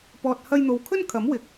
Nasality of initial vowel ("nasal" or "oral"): oral